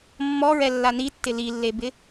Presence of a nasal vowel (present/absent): absent